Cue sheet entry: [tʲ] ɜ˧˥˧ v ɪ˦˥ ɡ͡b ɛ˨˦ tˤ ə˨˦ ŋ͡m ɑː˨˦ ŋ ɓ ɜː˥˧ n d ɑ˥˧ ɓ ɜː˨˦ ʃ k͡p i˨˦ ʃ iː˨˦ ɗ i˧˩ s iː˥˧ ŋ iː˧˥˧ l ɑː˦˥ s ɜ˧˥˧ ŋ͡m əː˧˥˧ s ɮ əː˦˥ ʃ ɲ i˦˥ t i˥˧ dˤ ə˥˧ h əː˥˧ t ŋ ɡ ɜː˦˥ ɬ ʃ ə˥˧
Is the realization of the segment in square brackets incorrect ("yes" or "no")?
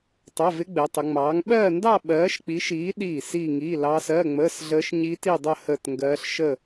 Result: yes